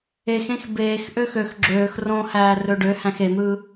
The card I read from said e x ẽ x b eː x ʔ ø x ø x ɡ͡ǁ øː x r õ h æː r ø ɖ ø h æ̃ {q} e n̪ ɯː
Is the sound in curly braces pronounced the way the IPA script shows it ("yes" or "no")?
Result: no